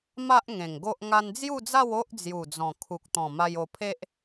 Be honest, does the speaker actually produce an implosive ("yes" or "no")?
no